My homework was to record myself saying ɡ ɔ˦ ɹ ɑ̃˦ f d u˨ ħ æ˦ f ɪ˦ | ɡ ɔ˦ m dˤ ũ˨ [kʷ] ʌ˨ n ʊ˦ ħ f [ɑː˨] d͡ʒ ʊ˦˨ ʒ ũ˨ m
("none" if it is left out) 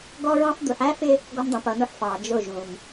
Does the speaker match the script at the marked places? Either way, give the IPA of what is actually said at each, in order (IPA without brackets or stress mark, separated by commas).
p, ɑː˨